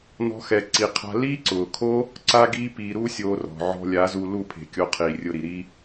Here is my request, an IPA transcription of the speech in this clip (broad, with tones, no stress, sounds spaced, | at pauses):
n ɔ̤˦ x ɛ˧ ǀ i˧ qʰ a̤˦ l iː˦ ǀ ʊː˨ kʰ o˦ | ǀ a˦ ɡ iː˦ p iː˧ ɾ uː˦ sʲ oː˧ r ɔ̤˨ ʕ ɔ̤˧ lʲ a˨˦ z u˧ l u˦˨ pʰ e̤˨ kʲ o˧ qʰ iː˨ rʲ ʊ˧ ɾ i˨ ɾ i˦